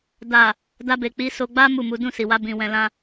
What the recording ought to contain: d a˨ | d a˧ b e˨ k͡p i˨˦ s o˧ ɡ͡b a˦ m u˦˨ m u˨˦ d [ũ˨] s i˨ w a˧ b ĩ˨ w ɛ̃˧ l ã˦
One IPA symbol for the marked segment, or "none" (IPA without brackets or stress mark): ũ˦˨